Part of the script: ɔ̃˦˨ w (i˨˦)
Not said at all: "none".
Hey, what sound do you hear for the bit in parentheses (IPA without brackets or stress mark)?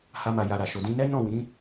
ĩ˨˦